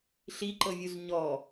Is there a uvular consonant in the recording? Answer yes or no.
no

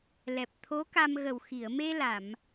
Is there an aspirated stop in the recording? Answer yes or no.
yes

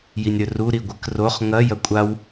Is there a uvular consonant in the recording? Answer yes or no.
yes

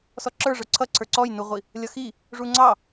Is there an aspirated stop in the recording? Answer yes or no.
yes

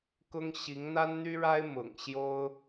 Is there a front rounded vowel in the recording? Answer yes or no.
yes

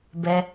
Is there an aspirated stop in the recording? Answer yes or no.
no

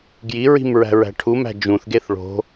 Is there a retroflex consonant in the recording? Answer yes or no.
yes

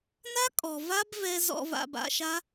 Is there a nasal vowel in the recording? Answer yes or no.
no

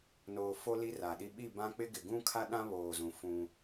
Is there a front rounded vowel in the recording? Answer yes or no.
no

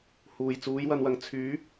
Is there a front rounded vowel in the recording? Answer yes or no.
yes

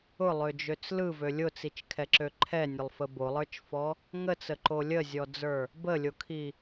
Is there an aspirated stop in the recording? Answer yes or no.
yes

